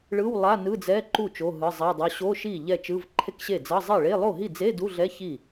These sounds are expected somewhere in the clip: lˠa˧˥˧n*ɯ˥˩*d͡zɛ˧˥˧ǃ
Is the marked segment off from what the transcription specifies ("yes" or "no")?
yes